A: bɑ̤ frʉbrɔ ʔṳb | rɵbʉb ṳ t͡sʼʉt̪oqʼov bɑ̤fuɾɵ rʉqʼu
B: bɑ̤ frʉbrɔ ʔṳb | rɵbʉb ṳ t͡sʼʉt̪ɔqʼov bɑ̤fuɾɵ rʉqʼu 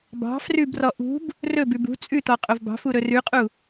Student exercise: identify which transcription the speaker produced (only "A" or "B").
B